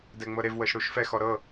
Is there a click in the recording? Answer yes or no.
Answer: no